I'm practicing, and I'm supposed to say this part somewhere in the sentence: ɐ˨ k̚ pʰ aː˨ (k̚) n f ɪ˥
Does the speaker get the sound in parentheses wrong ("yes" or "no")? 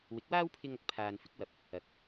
yes